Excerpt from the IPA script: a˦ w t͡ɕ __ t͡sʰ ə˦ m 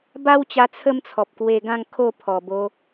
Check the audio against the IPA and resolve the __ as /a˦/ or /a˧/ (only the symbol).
a˧